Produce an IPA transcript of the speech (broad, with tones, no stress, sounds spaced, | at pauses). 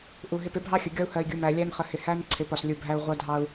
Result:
ʔ u˨ ɦ ɪ˦˨ p ɪ˦ bʱ ɑ˦ xʲ ə˨ ɡʲ ɒ˦ u̯ h ɜ˨ i̯ ɡʲ u˨ m æ˨ lʲ æ˦ n χ ə˨ h ɪ˨ h æ˦ n ǀʰ ɪ˨˦ p ɒ˨ s lʲ u˨ bʱ æ˦ u̯ ʁʷ ɜ˦ dʱ ɑ˦ u̯